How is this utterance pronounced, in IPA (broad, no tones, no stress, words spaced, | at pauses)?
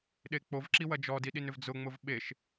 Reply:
ɗek͡povǁi wɐd͡ʒɔdi ɗinʏvd͡zʊŋ͡mʊv ɓeʃ